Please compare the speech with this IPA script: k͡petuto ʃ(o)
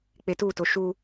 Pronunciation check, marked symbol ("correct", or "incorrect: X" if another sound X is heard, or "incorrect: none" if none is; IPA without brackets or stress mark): incorrect: u